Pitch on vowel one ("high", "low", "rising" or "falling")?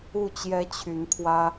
falling